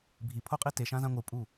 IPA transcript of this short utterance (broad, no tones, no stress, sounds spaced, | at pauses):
bʱ i pʰ o qʼ i t e ʃ ã z ã ŋʷ ɯ pʼ u